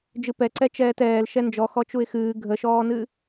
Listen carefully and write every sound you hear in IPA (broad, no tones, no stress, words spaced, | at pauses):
d͡ʒɨpɛ ǀɛt͡ʃɛːtɛːl ʃɛnd͡ʒɔ xɔt͡ʃuɪ̯xɨː ɡʱəʃɔːnɨ